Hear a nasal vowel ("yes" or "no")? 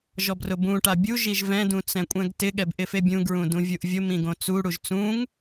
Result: yes